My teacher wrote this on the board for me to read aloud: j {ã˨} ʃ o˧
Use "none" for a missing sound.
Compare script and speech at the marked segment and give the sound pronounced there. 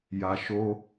a˨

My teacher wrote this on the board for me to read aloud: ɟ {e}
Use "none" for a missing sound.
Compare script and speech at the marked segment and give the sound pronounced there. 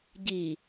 i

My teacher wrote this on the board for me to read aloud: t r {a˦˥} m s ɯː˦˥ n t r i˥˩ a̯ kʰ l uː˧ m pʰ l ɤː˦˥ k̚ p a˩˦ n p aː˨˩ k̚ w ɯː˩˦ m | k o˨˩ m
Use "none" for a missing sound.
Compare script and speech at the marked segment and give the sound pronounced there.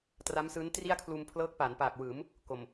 a˦˥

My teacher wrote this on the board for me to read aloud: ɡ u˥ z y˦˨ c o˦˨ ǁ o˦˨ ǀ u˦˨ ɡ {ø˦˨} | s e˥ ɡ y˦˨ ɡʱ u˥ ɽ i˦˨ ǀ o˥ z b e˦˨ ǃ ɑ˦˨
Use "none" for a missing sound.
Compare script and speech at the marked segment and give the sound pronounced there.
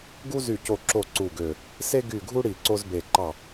ø˦˨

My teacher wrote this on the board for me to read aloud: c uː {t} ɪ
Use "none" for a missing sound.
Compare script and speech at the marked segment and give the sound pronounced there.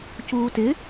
t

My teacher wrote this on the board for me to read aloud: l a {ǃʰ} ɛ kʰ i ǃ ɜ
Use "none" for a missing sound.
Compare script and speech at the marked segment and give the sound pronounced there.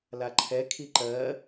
ǃʰ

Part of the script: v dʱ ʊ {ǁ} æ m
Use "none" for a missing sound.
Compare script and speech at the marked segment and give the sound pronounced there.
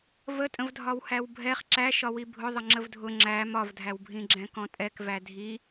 ŋ͡ǁ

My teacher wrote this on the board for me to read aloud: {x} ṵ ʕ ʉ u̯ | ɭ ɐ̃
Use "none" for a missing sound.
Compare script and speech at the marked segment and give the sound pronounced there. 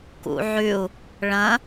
k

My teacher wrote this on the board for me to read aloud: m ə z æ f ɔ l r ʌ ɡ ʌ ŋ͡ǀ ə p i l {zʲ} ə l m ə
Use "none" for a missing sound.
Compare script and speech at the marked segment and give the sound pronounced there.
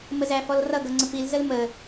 z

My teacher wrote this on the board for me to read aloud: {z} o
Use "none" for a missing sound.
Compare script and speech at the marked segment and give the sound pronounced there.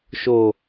ʃ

